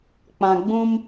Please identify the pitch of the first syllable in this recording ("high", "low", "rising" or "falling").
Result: low